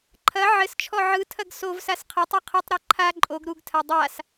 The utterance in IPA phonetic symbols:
ǃʰɐ ʕɘst͡ʃʰɔ ʕɯtʰɐɡ sovsas qʰɐtˤu qʰɯtˤɾɜ ǃʰa ǃʼoɡ ɾuɡtʰa dˤas

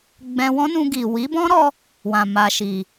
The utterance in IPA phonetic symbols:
ɡ͡bɛ̃˧wɔ̃˦nũ˧ ɡi˨wi˨˦bɔ̃˦ɾɔ˧ | wã˨ma˨ʃi˨

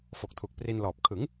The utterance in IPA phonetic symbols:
fo˨˩k̚tʰu˨˩k̚ pri˧nlɔː˨˩p̚ kʰɯ˩˦ŋ

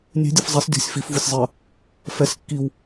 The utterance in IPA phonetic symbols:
nʲɛ̤ dʲʌfzˤis dʲɔ̤sʲ fif vusʲzˤə | fɛs kːiw

